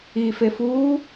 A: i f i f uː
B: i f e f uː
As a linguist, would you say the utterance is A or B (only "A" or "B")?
B